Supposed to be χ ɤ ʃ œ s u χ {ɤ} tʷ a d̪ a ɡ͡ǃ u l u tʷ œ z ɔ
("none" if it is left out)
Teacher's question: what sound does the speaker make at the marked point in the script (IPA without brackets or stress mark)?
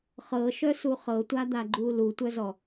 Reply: ɤ